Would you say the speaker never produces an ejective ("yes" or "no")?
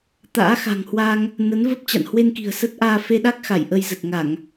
yes